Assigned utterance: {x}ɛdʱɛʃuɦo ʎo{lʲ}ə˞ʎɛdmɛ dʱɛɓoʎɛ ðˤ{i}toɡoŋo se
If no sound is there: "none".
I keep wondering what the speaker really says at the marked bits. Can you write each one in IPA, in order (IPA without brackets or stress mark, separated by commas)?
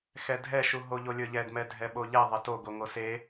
x, lʲ, e